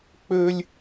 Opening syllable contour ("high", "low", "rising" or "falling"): high